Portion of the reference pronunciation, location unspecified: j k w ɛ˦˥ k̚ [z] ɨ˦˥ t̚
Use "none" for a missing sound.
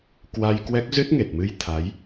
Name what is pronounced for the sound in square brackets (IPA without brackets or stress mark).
z